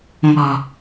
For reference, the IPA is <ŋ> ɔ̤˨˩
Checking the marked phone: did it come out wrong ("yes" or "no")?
no